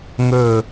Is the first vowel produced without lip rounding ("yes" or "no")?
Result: no